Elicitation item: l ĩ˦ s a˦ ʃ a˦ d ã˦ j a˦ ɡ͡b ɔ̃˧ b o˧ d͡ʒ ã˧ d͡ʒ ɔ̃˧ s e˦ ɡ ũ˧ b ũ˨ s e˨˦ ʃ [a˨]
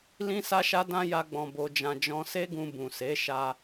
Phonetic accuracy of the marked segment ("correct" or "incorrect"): incorrect